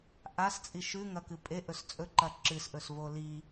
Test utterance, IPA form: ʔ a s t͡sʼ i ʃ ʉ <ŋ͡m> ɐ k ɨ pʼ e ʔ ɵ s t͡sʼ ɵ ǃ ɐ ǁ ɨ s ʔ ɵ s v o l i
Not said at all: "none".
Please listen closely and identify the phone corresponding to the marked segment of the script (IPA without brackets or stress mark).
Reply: ŋ